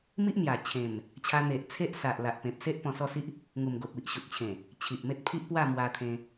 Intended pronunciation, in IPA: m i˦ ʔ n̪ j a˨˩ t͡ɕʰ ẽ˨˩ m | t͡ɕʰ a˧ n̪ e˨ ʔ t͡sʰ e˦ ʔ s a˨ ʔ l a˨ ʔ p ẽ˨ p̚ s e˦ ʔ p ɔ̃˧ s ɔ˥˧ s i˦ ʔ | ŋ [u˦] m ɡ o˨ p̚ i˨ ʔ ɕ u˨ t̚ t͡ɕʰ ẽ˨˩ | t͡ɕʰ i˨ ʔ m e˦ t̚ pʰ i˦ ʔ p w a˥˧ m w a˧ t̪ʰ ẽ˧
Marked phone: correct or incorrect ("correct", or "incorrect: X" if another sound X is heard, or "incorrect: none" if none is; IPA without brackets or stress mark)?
incorrect: u˨˩